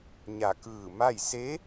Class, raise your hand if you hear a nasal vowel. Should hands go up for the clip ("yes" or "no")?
no